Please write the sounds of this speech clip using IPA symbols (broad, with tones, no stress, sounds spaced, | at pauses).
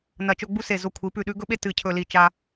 n ɐ˧˩ t͡ʃ ɵ˥˧ ɡ͡b u˥ s e˧˩ z o˧ kʷʰ i˩˧ p ʉ˧˩ ɗ ʉ˧ ɡ ɵ˥ ɓ e˥˧ t ɨ˧˩ cʰ ɵ˧˩ l i˧˩ t͡ʃ a˧